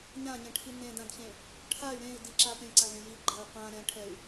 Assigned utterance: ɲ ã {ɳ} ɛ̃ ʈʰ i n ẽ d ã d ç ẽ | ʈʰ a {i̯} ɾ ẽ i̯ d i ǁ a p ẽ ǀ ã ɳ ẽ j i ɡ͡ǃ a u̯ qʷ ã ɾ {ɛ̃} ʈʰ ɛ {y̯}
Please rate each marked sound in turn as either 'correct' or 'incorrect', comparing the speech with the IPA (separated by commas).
incorrect, incorrect, correct, correct